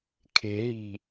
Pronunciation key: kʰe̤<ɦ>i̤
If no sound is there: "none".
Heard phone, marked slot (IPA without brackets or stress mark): ɦ